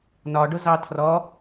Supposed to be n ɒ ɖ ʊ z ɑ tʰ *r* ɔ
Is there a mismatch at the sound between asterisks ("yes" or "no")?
no